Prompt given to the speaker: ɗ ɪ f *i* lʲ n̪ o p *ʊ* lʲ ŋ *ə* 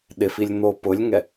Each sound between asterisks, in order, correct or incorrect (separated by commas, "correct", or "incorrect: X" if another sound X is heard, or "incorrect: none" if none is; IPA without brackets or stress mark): correct, correct, incorrect: ɛ